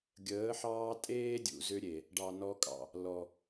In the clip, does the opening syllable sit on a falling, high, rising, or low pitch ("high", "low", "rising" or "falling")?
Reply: rising